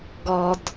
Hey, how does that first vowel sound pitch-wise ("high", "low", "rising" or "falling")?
low